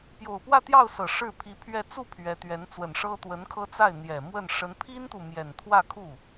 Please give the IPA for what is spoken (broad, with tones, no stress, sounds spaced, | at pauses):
p j o˨˩ ʊ̯ p w ä˥˧ t̪ j ɑ˥˩ ʊ̯ s ɤ˨˩ ʂ ɻ̩˥˩ pʰ i˧˥ pʰ ɥ ɛ˥˧ t͡s u˥˩ pʰ ɥ ɛ˧˥ t̪ ɥ ɛ˧˥ n t͡s w ə˨˩ n ʂ ɤ˥ t̪ w ə˧˥ n kʰ ɤ˥ t͡s a˥˩ ɪ̯ n̪ j ɛ˨˩ m w ə˥˩ n ʂ ə˧˥ n pʰ i˥ n t̪ u˨ m j ɛ˨˩ n t̪ʰ w ä˥˧ kʰ u˥˩